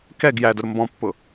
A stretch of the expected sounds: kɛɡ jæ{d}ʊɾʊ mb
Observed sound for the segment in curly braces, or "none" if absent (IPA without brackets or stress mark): d